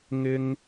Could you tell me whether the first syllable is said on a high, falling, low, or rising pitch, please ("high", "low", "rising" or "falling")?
low